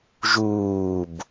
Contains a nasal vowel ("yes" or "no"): no